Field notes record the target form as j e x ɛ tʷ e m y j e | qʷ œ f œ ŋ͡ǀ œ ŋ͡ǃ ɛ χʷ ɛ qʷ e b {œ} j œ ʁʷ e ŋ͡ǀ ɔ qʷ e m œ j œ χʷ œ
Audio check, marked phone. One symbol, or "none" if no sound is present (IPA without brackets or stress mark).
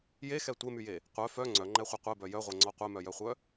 œ